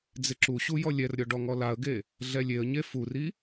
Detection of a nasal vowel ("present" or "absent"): absent